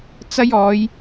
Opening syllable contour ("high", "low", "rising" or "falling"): high